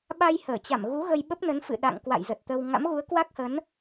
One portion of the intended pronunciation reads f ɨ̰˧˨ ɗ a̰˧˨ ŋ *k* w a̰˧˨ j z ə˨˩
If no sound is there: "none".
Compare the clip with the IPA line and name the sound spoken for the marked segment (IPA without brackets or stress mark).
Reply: k